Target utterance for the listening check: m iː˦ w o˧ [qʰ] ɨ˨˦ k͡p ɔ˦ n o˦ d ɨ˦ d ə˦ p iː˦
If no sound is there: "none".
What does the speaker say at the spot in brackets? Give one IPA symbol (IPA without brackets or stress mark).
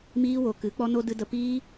k